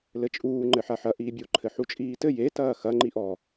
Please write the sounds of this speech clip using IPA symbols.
l ɘ t͡ʃʼ uː ŋ͡ǃ ɘ ħ a ħ ɐ ʔ iː bʲ o ǃʰ ɘ ħ u t͡ʃʼ iː t ɘ j e t ɐː x ɐ ŋ͡ǃ i ʔ ɔ

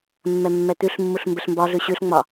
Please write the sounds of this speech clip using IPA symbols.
mː ɛ mː ɛ t̪ ʉ ɬ mː u ɬ m b ɘ ɬ m b ɒ ɮ ʉ ɕ ʉ ɬ ŋ͡m ɒ

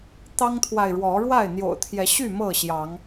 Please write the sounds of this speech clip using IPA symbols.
t̪ ɑ˦ ŋ t̪ʰ w a˨ ɪ̯ ɻ w ɔ˨˦ ɻ w a˥˨ ɪ̯ n̪ j o̰˨˩ ʊ̯ t̪ʰ j ɛ˨˦ ɕ y˥˨ m ɤ˥˨ ɕ j ɑ˨˦ ŋ

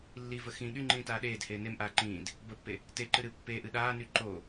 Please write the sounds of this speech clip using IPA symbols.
lː i v ə x ĩ ɠ y ŋ͡ǃ ĩː t aː ɗ eː d h eː n e m ʔ aː ǃ ĩː d | b ə pː e | t e ǃ ɨ ɾ ɨ pː e ʔ ɨ ɗ aː n y ǃ o

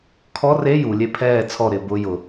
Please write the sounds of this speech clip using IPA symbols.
kʰ ɔ r e j u lʲ e pʰ ɛː t͡sʰ ɔ ɾ ɪː b ʊ j ʊ

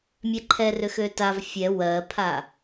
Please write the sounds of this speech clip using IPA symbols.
mʲ ɛ ǃʰ ɛ r ø x ø t a v fʲ ɛ w ɜ pʰ a

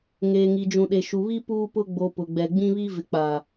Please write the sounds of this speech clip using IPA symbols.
ŋ eː˨ ŋ i˨ d͡ʒ ũ˨ ɗ e˨ ʃ u˨ β i˦ p uː˦ p ʊ˦ ɡ͡b o˨ p ʊ˨ ɡ͡b ɛ˨ ɡ͡b ĩ˦ β i˦ v ɪ˨ k͡p a˨

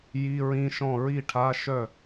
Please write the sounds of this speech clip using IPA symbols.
j i˧˥˧ ɹ ĩ˧˥˧ ʃ ɔ̃˥˩ ɹ i˥˩ ʈʰ a˧˥˧ ʃ œ˥˩

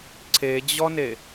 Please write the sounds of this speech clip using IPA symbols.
ǀʰ e d͡ʑ ɔ n e

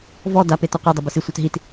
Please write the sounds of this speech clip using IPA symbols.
v ɔ d a p e t ɔ qʷ e dˤ ʊ b ʏ s i sʷ œ t ɦ i t

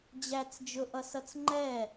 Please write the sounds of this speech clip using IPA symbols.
d͡ʑ æ t͡s d͡ʒ ʊ ʔ ʌ s ʌ t͡s ŋ͡ǃ ɛ

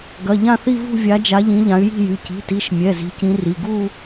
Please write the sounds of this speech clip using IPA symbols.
ɡ ɐ˩˧˩ ʎ ã˥˧ θ i˥˧ v ṳ˥˧ vʲ a˨˦ d͡ʒ a˨˦ ʎ ĩ˨˦ ʎ ã˨˦ y̯ j i̤˥˧ j y˩˧˩ c i̤˩˧˩ t i˩˧˩ ʃ mʲ ɛ˩˧˩ z i̤˨˦ c ĩ˨˦ r i˩˧˩ ɡ u˥˧

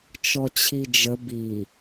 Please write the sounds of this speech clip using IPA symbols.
t͡ʃ ɔ t͡ɕʰ i d͡ʒ ə b i

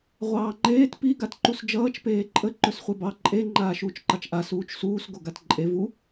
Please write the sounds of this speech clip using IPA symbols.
ʁʷ ɑː ŋ͡ǃ eː t p i ɡ a t ǃ u s d͡ʒ ʌː t͡ʃ p eː ǃʼ ə ǃ ɵ s χʷ e b ɑ ǃʼ e ŋ͡ǃ aː ʃ uː t͡ʃ ǃ ɑ t͡ʃ ʔ a s uː t͡ʃ s uː s ɡ o ɡ a t ǃʼ e v u

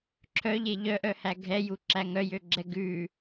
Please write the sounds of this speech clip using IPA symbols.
ǁʰ œ ʎ e ʎ œ ʔ œ h æ ɡʱ ɛ j u ǁ æ ŋ œ j ø ɡ͡ǁ ɛ ɡ ʉ

